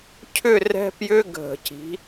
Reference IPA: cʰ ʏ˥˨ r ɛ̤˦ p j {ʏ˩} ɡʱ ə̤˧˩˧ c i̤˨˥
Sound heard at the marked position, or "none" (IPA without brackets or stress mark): ʏ˦